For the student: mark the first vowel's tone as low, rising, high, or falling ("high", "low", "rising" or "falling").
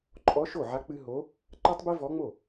rising